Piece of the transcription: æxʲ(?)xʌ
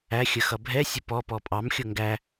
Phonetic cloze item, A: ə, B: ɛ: A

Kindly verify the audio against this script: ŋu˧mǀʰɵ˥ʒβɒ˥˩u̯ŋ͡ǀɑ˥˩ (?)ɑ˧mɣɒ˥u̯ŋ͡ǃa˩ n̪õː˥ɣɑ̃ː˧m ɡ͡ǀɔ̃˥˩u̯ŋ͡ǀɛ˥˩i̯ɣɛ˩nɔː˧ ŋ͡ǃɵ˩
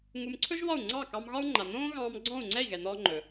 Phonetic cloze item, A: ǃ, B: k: B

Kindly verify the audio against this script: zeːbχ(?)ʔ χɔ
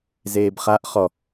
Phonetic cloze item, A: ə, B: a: B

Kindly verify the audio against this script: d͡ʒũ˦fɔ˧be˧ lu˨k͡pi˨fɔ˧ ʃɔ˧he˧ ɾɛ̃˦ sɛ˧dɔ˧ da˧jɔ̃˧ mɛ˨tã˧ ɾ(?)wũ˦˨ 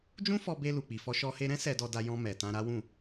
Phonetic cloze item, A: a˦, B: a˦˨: A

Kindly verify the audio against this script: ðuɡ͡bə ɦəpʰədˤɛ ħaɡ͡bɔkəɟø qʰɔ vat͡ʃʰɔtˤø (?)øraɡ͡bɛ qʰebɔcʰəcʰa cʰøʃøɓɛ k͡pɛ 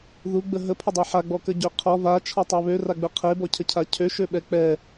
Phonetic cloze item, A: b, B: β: B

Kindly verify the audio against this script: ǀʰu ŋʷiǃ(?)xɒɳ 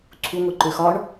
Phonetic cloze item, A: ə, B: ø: B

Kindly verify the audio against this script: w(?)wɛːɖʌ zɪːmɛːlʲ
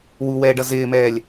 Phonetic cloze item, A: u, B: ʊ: A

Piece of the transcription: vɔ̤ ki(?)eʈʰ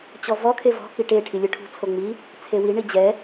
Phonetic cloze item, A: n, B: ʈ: B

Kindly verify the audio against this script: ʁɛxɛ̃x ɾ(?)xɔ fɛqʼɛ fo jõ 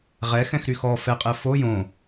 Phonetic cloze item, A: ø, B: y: B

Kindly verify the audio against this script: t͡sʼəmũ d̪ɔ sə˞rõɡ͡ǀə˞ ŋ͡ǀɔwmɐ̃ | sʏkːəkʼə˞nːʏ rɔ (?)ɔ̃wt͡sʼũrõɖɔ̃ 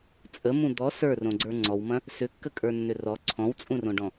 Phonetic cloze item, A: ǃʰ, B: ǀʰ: B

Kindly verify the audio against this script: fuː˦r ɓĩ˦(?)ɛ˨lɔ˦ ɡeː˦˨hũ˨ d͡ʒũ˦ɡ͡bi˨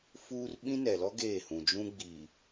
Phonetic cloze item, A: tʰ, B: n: B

